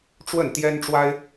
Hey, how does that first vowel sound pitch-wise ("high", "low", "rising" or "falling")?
falling